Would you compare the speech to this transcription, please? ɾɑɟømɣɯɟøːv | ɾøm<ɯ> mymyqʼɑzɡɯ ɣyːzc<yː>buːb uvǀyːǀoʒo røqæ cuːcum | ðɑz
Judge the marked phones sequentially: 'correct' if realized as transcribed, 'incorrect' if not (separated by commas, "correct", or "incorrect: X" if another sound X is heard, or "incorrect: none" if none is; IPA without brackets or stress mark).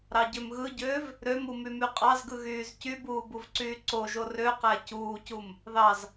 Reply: incorrect: u, incorrect: y